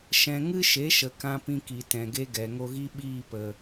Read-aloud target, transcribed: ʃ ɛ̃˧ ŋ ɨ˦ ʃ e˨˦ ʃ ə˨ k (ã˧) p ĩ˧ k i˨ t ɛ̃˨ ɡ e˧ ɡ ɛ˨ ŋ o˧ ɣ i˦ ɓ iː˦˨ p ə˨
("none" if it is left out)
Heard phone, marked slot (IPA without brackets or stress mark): ã˧